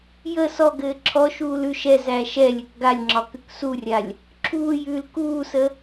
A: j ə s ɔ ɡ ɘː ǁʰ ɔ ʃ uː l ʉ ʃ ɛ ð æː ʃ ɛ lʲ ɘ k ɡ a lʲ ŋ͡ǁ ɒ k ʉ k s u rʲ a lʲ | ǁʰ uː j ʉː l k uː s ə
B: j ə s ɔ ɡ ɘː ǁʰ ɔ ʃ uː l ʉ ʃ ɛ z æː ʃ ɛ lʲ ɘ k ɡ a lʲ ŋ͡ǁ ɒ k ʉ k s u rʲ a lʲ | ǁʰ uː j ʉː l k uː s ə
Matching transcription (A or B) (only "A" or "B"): B